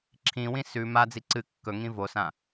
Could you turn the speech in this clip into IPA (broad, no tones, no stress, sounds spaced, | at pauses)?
ǁʰ ĩ w ĩ s ʉ m a d͡z i ǀ ɨ kː ɵ ŋ ĩ v o s ã